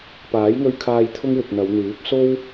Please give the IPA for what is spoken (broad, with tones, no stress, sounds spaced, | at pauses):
p aː˨˥ j ŋ ɵ˧ ɥ kʰ aː˧ j t̪ʰ ʊ˥ ŋ w ɪ˨ k̚ n̪ ɐ˨˧ w n̪ yː˨˥ p̚ s o˥ w